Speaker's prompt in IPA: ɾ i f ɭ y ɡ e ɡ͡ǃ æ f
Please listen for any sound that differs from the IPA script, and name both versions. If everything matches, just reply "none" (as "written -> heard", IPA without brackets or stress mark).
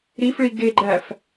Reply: y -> i